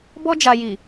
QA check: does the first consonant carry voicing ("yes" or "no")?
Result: yes